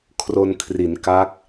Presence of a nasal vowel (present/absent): absent